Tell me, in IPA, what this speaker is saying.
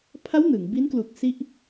pʰ a˦˥ w n ɯ˩˦ ŋ b i˦˥ n k l u˨˩ k̚ s i˥˩ ʔ

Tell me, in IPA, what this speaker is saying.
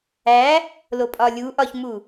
æ | l o pʼ ɒ lʲ u ʔ ɒ ç m u

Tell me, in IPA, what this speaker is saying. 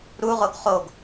ɾ u ʁ o ɡ χ o ɡ

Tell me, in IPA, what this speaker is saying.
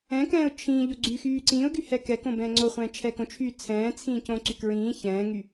ɛ̃ k ɛ̃ː ʊ̯ t͡ʃʰ ĩː ʎ o ɡ͡ǀ y x yː ǀ ĩː ʊ̯ ɡ y h ɛ k ɛ k õ b ɛ̃ː ŋ͡ǀ o χʷ ɛ̃ː t͡ʃʰ ɛ k õ t͡ʃʰ yː t͡sʰ ɛ̃ː t͡sʰ ĩː c õ ǀ y k ɹ ĩː ç ɛ̃ː ŋ y

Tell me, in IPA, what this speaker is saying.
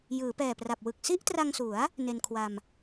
j ɯː˩˦ p ɛː˨˩ p r a˨˩ p̚ w ɯ˨˩ k̚ s i˥˩ ʔ t r a˧ ŋ s u˩˦ a̯ | n e˧ n kʰ w a˧ m

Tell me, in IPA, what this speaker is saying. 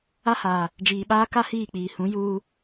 a˦ h aː˨ | d͡ʒ iː˨ ɓ aː˦ k a˦ h iː˦˨ k͡p iː˨ h ũ˨˦ j uː˦

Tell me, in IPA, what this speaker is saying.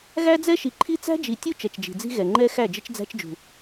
ɣ æ˦ d͡z ɛ˦ ʃ i˨ ǃʰ i˦ t͡s æ̤˦ d͡ʒ i˨ tʲ u˦ t͡ʃ ɛ˨ t͡ʃ d͡ʒ i̤˨ d͡z i̤˦ ɣ ɛ˨ ŋ͡ǃ ɛ˦ x æ˦˨ d͡ʒ ɪ˦ t͡ʃ d͡z æ̤˦ t͡ʃ d͡ʒ ṳ˨

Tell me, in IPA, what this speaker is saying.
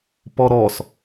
p ɔ ɾ ɔ s

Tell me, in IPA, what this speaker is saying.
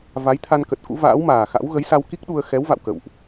v a˨˦ j t̪ʰ a˧ n k ə˨˩ t̚ k ṵ˧˥ v a̰ː˧˥ w m aː˨˩ x a̰˧˥ w ɣ ə˨˦ j s a˧ w k i˦˥ k̚ ɗ u˧ ə̯ x ɛ˨˦ w v a̰˧˨ w k ə̰˧˨ w ʔ

